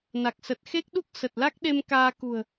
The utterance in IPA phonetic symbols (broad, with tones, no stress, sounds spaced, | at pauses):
n a˨˩ k̚ s ə˨˩ t̚ x e˦˥ k̚ ɗ u˦˥ k̚ s ə˨˩ t̚ l a˦˥ k̚ ɗ e˧ m k aː˧ k ṳ˨˩ ə̯